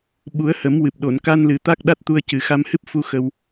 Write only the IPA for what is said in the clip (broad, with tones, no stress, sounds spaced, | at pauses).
ɓ u˨˩˦ ə̯ h ə˨˩˦ m w ɨ˨˩ p̚ ɗ o˨˩˨ n k a˧ n l ɨ˨˩ t̪ a˦˥ k̚ ɗ a˦˥ t̚ t̪ u˧ ə̯ c ɨ˨˩ x a˧ m h ɨ˦˥ p̚ f u˧ x ə˧ w